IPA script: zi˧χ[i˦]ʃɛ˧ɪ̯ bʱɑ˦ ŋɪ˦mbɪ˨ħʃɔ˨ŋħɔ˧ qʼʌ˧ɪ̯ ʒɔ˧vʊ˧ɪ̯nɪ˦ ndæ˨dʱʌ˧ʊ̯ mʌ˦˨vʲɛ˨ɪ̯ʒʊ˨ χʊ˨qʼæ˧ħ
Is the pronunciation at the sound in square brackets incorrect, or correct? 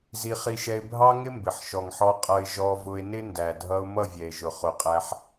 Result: incorrect: i˧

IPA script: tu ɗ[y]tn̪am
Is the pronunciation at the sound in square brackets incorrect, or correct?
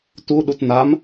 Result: incorrect: u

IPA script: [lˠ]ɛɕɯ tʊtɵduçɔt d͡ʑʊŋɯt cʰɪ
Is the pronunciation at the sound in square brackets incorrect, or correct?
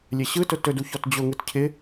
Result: incorrect: lʲ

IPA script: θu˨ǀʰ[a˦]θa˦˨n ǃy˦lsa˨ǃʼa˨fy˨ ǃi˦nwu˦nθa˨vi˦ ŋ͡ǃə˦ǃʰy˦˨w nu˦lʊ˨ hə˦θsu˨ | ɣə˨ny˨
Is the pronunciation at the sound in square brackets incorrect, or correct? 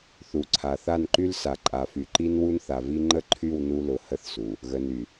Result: incorrect: a˨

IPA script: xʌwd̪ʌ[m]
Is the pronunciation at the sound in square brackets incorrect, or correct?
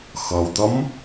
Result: correct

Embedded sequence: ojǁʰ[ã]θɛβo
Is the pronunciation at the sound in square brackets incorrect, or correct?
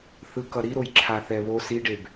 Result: incorrect: a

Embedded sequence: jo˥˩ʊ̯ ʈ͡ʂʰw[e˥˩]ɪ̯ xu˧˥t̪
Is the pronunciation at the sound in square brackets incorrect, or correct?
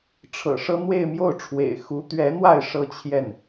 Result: incorrect: ḛ˨˩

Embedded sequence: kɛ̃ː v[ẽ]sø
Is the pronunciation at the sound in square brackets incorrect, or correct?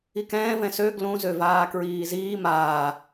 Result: incorrect: ɛ̃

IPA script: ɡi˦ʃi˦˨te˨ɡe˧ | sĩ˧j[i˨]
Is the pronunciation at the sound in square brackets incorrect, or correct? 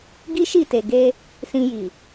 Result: correct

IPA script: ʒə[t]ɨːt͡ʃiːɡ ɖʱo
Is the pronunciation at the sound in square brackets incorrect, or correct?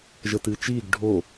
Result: correct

